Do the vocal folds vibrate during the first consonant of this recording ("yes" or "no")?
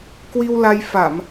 no